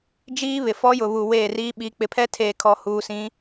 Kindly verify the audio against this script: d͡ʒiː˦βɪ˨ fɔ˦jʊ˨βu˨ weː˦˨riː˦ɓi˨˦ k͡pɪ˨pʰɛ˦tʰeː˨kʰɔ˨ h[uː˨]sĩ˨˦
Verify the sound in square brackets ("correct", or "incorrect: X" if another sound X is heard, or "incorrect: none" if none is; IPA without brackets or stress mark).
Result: correct